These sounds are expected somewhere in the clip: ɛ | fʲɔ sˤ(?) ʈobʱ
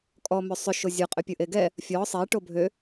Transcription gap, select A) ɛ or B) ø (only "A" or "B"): A